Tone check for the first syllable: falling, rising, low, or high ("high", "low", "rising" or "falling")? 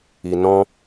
low